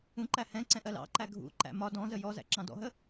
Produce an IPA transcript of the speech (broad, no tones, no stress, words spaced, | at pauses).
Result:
ũǃæ hɛ̃ ǀɛ̃ʔɜlɑ̰ǃæ ɡʱṵǃæ̰ mɒ dɔ̃zə jɔzæ̰ ǁɑ̃dɔ̰ɦə